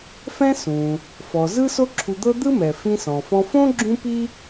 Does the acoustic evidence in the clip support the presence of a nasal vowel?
yes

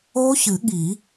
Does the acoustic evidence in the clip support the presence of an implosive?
yes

